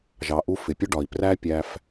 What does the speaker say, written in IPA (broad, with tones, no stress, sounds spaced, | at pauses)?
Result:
ʒ ɑ˩ ʔ u˧ f ɪ˩ pʲ ʊ˥ ɖ ɒ˩ i̯ p r æ˥ pʲ æ˧ f